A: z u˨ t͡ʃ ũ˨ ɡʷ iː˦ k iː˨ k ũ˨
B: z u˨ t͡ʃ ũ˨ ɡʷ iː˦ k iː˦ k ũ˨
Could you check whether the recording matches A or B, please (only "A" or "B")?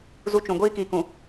A